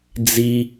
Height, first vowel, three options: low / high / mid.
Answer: high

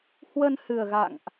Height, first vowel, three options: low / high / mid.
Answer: mid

